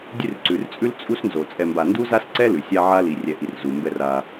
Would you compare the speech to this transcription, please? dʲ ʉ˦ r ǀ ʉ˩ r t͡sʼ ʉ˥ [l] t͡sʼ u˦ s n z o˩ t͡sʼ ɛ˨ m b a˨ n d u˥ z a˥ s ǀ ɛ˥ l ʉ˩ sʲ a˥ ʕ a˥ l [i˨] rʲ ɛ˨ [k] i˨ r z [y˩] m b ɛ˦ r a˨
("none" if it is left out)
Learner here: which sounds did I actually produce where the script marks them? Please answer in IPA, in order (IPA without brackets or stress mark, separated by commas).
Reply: l, i˨, ʔ, u˩